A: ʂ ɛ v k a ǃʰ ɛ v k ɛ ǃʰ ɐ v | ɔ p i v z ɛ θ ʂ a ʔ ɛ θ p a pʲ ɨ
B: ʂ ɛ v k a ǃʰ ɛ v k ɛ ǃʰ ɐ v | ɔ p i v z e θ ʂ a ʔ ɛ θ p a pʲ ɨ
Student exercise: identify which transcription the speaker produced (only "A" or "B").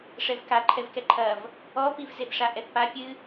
B